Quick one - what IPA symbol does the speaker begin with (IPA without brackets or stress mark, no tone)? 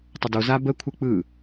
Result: tˤ